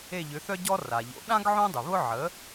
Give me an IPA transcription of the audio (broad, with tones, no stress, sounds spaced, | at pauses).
e˦˨ ʎ ʏ˩˥ θ œ˥ ɟ ɔ˥ r a˩ ʎ o̰˩˥ ɗ ã˥ ɡ ʕ õ˥ dˤ ʏ˩ β ʊ˥ ʕ ə˩˥